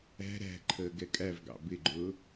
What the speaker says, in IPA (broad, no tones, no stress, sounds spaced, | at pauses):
æ̤ ɾ æ̤ ǃʰ əː ɡ ɛ kʼ æ v ɡ ɑ̰ b ɪ ɡ͡ǃ ʊː